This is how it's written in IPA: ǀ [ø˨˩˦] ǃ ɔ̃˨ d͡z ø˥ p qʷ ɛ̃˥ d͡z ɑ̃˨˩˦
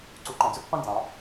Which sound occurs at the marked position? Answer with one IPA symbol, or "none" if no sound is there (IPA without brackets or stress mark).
u˨˩˦